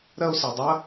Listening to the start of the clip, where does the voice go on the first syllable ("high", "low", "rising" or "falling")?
high